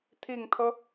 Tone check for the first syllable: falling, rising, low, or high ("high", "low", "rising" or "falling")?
low